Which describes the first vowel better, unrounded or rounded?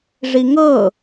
unrounded